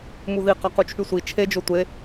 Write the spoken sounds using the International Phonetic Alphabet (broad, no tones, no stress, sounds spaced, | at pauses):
m u ð i q ɑ q u t͡ʃʰ y sʷ i t͡ʃʰ e d͡ʒ o tʷ e